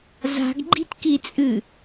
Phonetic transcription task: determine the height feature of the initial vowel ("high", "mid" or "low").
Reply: low